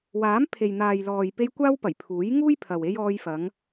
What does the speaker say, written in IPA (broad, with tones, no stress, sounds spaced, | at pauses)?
w aː˨˥ m pʰ e˨ j n̪ aː˨ j l ɔː˨ j p e˧ j kʷ aː˥ w p ɐ˨˩ j pʰ uː˨˥ j ŋ uː˥ j pʰ ɐ˨ w e˧ j ɔː˧ j f ɐ˨˧ ŋ